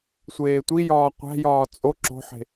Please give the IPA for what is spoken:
sʷ eː tʷ i j ɒː qʷ æ̤ j ɒː t͡sʼ o ǁ o̤ ħ e̤

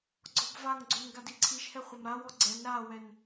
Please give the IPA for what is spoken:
ɡ͡ǀ ɔ b v a ŋ ɡ͡ǀ o n ɡ a d i ǀʰ i ʃ h ɛ χʷ ɐ m ɾ a w ɔ ɡ͡ǀ ɛ n ɾ a w ɛ n

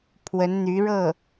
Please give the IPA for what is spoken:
pʰ w ə˧˥ n n̪ y˧˥ ɻ ɤ˥˩

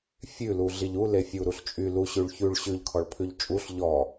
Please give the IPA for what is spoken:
fʲ ʉ l u ɮ i ʎ u l e fʲ u ɾ u ɬ t͡ʃʼ y l u ɕ ʉ ɭ ç ʉ ɭ ɕ ʉ ʎ kʰ ɔ ɭ pʰ ʉ ʎ t͡ʃʼ u ɬ ʎ ɔ

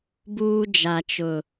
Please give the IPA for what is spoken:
b uː˦ d͡ʒ a˨ t͡ʃ ʊ˨

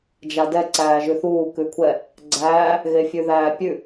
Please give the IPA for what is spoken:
d͡ʒ a d ɛ ǀ æː ʒ ʉ θ uː k ʉ kʷʰ ɛ | ɡ͡ǀ æː | ɣ e fʲ ʉ ð æː pʲ ʉ

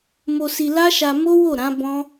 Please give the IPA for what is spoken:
m o˧ s i˧ l a˦ ʃ a˧ m o˦ w o˦˨ ɾ ã˨˦ b ɔ̃˦

